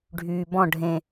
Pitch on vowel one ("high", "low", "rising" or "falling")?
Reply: low